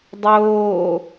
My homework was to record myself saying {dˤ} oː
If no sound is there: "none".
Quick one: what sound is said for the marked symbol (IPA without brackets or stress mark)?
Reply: dˤ